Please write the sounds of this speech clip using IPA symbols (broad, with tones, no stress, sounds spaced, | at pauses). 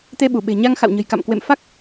t̪ e˧ ɓ u˧˩ ɓ e̤˨˩ ɲ a˧ ŋ x a̰˧˨ w ɲ ə̤˨˩ j k a̰˧˨ m k w ḛ˧˨ m f a˦˥ k̚